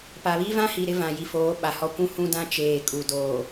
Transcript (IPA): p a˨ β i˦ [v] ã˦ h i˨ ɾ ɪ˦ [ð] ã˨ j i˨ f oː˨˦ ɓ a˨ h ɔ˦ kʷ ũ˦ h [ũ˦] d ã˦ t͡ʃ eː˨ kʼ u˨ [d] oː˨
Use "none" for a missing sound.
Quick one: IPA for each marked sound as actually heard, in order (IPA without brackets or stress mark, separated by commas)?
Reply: v, v, ũ˦, d